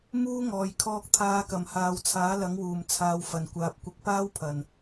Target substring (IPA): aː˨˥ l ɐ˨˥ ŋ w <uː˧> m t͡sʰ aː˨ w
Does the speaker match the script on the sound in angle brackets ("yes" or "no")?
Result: no